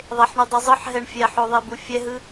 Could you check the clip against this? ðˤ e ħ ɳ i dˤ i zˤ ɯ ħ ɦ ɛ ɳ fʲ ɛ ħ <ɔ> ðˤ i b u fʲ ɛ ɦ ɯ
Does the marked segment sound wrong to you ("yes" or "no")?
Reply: yes